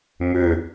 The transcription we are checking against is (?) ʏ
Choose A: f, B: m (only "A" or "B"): B